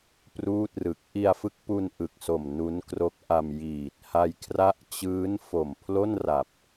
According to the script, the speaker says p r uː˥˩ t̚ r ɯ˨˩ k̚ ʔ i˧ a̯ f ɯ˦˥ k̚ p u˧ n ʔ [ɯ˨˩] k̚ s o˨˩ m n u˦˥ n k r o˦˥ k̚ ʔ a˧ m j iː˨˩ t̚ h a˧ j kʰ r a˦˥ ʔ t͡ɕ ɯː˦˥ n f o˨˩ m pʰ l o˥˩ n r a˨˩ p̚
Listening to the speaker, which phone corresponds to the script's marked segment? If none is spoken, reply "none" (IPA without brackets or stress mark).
ɯ˨˩